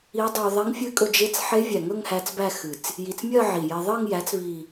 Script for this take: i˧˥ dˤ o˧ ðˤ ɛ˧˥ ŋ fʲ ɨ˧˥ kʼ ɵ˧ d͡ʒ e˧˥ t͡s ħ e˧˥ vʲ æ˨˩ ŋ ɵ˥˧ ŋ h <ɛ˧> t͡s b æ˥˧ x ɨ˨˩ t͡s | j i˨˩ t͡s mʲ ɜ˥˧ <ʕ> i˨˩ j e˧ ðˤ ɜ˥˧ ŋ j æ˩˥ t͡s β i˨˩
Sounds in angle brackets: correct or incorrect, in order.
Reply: incorrect: æ˧, correct

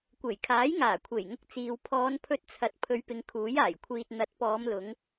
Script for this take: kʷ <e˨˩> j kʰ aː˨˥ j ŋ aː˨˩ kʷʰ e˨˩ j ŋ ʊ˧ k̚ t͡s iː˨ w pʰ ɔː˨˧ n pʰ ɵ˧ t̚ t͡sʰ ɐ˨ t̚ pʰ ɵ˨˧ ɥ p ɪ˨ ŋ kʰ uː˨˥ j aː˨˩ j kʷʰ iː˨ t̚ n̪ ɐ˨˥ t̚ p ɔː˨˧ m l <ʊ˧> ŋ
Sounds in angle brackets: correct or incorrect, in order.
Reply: correct, incorrect: ʊ˨˧

